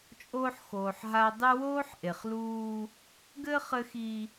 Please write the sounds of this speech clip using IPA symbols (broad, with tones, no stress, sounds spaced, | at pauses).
t͡ʃʼ oː˦ ħ x oː˨ ħ ɦ a˦ dˤ ɨ˦ w oː˦ ħ ʔ e˨ χ l uː˦ | ɡ ɘ˦ χ ɘ˦ x i˦